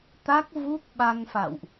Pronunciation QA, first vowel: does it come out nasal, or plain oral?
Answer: oral